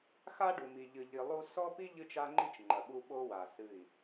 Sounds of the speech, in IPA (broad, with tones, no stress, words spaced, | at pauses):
xa˦ɖu˨mi˨ ʎɨ˨ʎi˨ lˠu˦ sɔ˦pi˦ ʎɨ˦t͡ʃa˦ŋ͡ǃi˦t͡ʃ ŋ͡ǃɐ˨ɓu˦ ɓo˦wa˨ sɨ˦˨i̯